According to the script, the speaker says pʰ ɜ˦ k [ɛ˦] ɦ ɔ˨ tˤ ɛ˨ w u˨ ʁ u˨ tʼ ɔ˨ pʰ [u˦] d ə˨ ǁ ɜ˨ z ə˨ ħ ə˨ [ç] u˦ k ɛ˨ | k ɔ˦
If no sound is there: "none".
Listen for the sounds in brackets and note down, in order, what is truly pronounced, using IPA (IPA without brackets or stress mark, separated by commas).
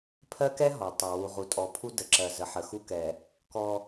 ɛ˦, u˦, x